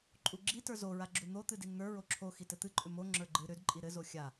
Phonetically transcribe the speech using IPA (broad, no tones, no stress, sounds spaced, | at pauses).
ǃʼ u ɡ͡ǁ i t ə˞ z o ɹ a ɡ͡ǁ u n̪ o t̪ ɨ d i n n̪ ə˞ ɹ o ǁʰ o x i t ɘ t̪ ɨ ǃʼ ʏ m o ŋ͡ǁ ə˞ ɡ͡ǃ ɨ ɾ ʏ d ǃʼ i ɾ ɘ z o xʲ a